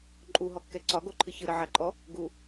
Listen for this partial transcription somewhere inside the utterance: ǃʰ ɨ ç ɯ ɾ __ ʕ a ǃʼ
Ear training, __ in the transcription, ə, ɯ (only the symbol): ə